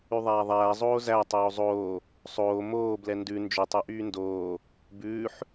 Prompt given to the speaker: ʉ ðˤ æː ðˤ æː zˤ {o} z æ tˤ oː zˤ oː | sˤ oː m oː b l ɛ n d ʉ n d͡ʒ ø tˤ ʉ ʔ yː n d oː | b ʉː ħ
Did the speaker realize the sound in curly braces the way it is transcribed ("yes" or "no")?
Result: no